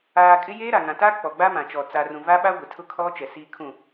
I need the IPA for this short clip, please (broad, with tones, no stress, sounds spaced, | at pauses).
aː˨ kʼ ɪ˦ j eː˦ ɾ a˨ ŋ ã˨ t a˦ k͡p ɔ˨ ɡ͡b a˦ m ã˨ t͡ʃ ɔ˨ t͡s a˨ r ũ˨ v a˦ ɓ a˦ ɡʷ ɪ˨ tʰ ʊ˦ kʰ ɔ˦ t͡ʃ ɛ˨ s iː˦ kʰ ũ˦˨